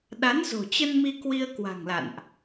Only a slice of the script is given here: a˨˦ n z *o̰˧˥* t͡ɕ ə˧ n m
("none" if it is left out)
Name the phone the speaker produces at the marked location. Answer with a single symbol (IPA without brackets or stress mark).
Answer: o̤˨˩